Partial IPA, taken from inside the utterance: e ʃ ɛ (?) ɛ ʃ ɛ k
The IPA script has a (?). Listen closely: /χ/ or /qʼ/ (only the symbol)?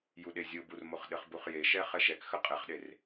χ